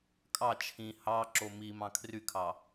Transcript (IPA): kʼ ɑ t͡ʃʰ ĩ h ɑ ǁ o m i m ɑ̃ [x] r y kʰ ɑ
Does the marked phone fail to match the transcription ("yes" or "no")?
yes